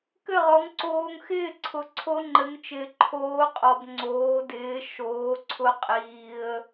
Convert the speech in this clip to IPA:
k ɘ˥˨ ʁ ɔ˨˥ ŋ ǀ oː˧ ŋ x ɪː˥˨ ǀʰ ʊ˨˥ ǀʰ o˦˥ ŋ͡ǃ ɘ˨˥ ŋ t͡ʃ ɪː˧ ǃʰ oː˦˥ qʼ ɔ˧ b ŋ͡ǀ oː˨˥ d ɪː˨˥ ʃ oː˨˥ ǀʰ ʊ˦˥ qʼ iː˧ ə̯

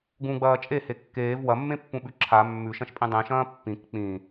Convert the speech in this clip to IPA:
ɡ ũ ɡ͡b ɐː t͡ʃʼ e h e kː eː v w ɐ mː ẽ pː ũ ɓ ʉ ǁʰ a mː ʉ ʃ ɐ̃ ʃ pʼ ĩ dˤ ĩ ʃ ɐ̃ː pː ĩ k k͡p ĩ

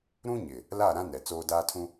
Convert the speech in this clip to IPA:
ɾ ũ˦ ɲ ɪ˨ | l a˦˨ ɾ ã˦ n ɛ˨ t͡s oː˦ d aː˦ tʰ ũ˦

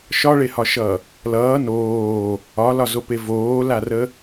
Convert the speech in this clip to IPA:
ʃ ɒ ɭ e h ɒ ʃ ʌ | l ʌː n oː | ɒ l ɒ z o p e v oː l a r ə

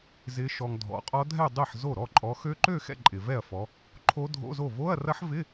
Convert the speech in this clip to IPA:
z ɪ˨˦ ʃ ɔ˨ ŋ dʱ ɔ̰˨˦ qʼ ɔ˦˥ dʱ ɛ˥˧ dˤ i˥˩ ħ z o˥˩ ɾ ɔ˥˩ ǃʼ ɔ˨˦ x ø˦˥ ǃ ø˥˧ x ɛ̰˥˧ ǃʼ ɪ˨ v ɛ˥˩ ɐ̯ f ɔ˨˦ | ǃʰ o˦˥ dʱ o̰˧˥˧ z o˥˩ v o˧˥˧ ɐ̯ r ɐ˦˥ ħ v ɪ˧˥˧

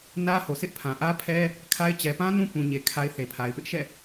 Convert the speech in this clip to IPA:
n ä˦ h o˨ sʰ ɪ˦ ʔ pʰ ã˨ ʔ ä˦ pʰ ɛ˦ | kʰ a˦ ɪ̯ t͡ɕ ɛ˨ p ã˦ n ũ˦ p ũ˨ ɲ e˨ kʰ a˨ ɪ̯ θ e˨ pʰ a˨ ɪ̯ p ɪ˦ ʔ ʃ ɛ̰˦˨

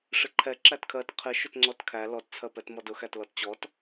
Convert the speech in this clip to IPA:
ʂ ɪ ǃʰ ɛ ǁ æ t kʰ ɜ t qʰ ɪ ʃ ʊ t ŋ͡ǀ ɔ t kʰ æ l ɔ t t͡sʰ ɜ p ɛ t m ɔ d ʊ x æ t l ɔ t t͡ɕ ɔ t

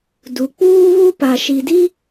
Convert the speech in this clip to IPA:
d u˨ k͡p uː˦ β u˦ p a˨ ʃ i˨ d i˦

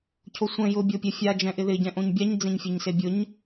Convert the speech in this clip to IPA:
cʰ o sʷ ɛ̃ j ʊ bʲ o pʲ ɛ fʲ a d͡ʒ ɛ̃ ʔ ɪ ð ɪ ɟ ɛ̃ ʔ õ ɲ bʲ a ɲ d͡z ẽ ɲ fʲ e ɲ s e bʲ ʊ ɲ

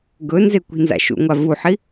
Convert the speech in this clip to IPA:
ɡ ɵ n z e kʷ i̤ n z a̰ ʃ ṵ ŋʷ a v u ħ i

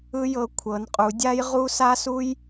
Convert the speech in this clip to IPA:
ɯ˦ j ɤ˨˥ kʷʰ ɤ˨˥ n qʼ u˨˥ dʲ a˦ j ʁ u˦ s a˦ s u˦ j

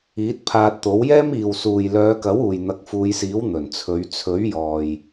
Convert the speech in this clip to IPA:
iː˨˥ t̚ pʰ aː˧ t̚ t̪ o˨˥ w j ɛː˥ m iː˨ w s uː˨ j l œː˨˧ k ɐ˨˥ w uː˨ j n̪ ɐ˨˥ k̚ f uː˨˧ j s iː˨˥ w n̪ ɵ˨˩ n t͡sʰ ɵ˨˧ ɥ t͡sʰ ɵ˨˥ ɥ j ɔː˨ j

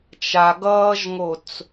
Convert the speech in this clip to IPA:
t͡ʃ a ɡ ʌː ʒ ŋ o t͡s

